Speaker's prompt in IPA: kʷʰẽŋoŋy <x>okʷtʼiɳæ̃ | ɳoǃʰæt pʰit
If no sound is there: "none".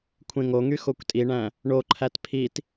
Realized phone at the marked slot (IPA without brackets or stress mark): x